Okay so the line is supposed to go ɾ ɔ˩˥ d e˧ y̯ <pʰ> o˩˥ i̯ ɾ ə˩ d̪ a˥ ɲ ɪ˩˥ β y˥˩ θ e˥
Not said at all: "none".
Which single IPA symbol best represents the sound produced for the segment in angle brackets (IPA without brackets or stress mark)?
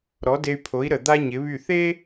pʰ